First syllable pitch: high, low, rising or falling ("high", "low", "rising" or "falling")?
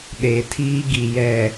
low